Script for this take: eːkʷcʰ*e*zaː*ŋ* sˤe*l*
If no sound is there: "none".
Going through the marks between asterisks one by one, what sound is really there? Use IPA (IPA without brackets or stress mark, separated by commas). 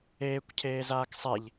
eː, k, ʎ